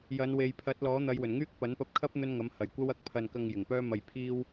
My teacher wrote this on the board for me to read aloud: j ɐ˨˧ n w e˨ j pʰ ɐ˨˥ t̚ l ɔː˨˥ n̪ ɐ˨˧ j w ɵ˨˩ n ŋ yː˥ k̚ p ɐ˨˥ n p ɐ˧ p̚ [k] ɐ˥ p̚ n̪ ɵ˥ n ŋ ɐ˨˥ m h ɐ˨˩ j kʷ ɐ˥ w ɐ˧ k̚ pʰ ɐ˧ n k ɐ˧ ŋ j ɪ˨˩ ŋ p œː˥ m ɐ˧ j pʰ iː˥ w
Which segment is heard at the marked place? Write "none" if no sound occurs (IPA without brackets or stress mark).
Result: kʰ